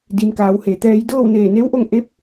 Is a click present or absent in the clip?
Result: absent